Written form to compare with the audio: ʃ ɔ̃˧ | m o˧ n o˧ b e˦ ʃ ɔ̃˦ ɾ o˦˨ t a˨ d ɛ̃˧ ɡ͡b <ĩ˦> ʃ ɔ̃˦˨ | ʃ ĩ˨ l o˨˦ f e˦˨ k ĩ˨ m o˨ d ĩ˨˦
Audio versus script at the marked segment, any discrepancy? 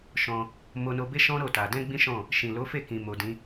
no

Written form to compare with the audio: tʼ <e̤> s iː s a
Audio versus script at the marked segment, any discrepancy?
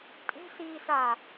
no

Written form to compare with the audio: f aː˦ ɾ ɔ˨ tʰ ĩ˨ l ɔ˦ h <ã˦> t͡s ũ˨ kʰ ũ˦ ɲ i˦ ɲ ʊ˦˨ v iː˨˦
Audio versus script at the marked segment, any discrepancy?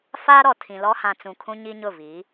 yes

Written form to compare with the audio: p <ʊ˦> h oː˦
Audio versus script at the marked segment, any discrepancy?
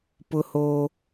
no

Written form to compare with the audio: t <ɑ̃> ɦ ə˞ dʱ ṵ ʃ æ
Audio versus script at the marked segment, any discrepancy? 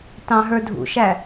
no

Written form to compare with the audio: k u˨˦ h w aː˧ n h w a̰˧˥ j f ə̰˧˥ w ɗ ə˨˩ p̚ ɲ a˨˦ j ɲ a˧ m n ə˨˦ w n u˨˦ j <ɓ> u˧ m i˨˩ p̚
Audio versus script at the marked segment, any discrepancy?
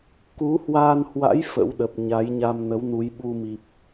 no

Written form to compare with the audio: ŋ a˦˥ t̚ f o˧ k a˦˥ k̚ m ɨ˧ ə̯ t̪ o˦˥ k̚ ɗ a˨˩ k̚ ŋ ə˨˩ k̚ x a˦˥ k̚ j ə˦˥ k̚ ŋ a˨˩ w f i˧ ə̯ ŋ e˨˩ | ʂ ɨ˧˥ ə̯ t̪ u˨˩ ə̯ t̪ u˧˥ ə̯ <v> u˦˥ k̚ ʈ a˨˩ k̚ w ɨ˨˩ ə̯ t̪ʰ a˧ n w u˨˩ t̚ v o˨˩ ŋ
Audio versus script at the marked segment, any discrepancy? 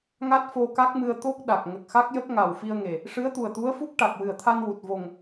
yes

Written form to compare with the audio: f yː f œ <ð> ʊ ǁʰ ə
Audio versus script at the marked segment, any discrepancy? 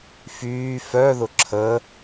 no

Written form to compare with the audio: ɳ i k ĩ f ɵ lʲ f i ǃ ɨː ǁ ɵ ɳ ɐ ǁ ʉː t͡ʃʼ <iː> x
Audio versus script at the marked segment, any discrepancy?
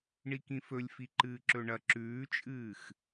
yes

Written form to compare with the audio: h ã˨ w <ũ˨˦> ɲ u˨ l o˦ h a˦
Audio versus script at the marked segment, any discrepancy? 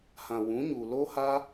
no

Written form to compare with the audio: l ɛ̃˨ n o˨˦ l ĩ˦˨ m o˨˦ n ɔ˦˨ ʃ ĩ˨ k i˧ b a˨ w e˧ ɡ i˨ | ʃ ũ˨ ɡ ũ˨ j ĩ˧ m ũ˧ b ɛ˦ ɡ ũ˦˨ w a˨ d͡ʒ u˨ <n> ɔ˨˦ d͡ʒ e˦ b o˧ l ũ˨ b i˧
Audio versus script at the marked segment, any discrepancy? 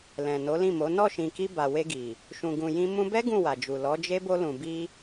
yes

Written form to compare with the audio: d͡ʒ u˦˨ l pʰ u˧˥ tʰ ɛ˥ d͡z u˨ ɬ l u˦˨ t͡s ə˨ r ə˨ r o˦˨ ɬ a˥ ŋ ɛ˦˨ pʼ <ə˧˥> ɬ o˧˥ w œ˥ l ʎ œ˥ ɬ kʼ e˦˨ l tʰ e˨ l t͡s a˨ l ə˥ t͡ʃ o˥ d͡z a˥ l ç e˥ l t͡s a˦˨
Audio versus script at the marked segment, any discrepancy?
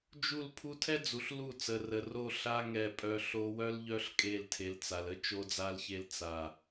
yes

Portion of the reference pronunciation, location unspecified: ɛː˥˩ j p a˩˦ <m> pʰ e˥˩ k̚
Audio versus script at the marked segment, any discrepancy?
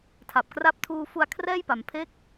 no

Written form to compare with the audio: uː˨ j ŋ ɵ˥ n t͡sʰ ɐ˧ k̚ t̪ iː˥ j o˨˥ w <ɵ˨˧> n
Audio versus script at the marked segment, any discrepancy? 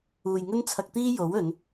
no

